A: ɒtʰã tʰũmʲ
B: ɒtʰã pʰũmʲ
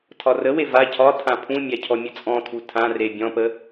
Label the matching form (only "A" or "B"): B